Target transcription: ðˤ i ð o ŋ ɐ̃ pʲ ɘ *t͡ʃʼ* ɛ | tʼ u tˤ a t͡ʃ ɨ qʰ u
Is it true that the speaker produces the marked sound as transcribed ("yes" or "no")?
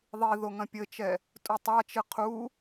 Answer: no